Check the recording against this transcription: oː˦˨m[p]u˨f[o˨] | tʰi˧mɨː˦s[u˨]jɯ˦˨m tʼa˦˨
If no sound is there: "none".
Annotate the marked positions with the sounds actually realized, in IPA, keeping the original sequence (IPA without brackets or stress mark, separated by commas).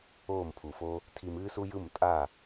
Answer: pʰ, o˦, u˦